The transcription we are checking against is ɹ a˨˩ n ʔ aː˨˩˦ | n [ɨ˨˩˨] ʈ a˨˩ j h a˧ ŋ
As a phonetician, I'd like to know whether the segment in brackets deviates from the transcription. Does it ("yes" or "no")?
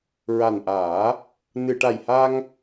no